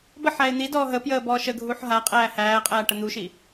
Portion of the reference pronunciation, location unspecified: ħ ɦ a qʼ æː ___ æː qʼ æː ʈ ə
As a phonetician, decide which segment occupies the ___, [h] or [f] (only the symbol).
h